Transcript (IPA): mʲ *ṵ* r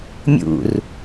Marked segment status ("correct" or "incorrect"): correct